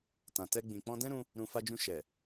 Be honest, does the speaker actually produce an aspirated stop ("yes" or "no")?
no